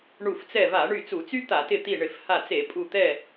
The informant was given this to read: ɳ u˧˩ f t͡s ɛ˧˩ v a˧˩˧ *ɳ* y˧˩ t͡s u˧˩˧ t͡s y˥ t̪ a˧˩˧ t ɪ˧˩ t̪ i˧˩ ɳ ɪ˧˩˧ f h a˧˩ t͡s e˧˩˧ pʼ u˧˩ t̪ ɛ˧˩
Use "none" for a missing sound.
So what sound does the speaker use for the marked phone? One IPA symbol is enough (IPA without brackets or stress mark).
ɳ